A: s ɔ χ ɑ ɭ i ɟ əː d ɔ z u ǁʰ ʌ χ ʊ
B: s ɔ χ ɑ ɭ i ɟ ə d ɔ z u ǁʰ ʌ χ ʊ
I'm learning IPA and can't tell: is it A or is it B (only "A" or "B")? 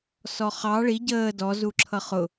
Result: A